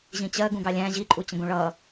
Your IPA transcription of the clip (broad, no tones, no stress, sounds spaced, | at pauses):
ʑ ĩ t͡ɕ ɜ ɡ ũ ɡ ɑ lʲ æ̃ ʑ i ǃʼ u t͡ɕ ə̃ ɡ ũ ɭ ʌ